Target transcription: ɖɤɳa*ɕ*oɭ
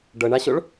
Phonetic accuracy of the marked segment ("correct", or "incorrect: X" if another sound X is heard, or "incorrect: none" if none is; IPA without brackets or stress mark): correct